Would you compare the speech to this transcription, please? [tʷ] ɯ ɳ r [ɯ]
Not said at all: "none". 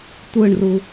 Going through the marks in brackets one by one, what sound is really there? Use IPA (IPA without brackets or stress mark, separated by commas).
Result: tʷ, u